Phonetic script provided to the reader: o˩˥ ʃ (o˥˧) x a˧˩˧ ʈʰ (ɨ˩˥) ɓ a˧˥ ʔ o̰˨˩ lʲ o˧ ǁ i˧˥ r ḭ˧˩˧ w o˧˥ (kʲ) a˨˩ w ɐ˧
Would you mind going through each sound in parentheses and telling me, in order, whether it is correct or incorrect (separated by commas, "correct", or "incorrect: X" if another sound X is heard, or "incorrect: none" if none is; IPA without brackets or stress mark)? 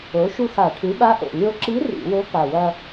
incorrect: u˥˧, correct, incorrect: k